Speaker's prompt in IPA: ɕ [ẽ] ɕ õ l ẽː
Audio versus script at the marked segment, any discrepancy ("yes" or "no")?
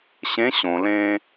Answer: no